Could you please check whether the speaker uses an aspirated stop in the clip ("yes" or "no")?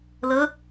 no